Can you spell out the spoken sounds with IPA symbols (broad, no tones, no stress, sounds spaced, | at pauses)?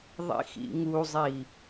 ðˤ ḭ x ḭ ŋ u zˤ i